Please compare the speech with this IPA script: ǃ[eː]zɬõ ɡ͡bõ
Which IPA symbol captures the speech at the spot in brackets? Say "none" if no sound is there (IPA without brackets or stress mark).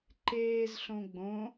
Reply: eː